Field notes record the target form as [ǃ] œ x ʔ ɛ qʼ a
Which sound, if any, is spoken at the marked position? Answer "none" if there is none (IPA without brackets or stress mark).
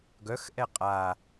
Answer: ɡ